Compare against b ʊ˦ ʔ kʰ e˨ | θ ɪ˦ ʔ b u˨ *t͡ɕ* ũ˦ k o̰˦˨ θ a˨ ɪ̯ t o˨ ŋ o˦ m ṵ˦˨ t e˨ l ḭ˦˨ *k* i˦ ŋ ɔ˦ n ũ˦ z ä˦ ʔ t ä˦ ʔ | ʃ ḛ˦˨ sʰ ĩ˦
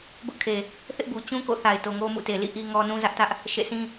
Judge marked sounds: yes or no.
yes, no

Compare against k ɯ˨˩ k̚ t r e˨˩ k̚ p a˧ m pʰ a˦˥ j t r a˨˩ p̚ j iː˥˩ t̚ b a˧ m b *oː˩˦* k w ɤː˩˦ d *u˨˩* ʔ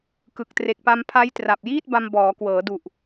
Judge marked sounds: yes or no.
no, yes

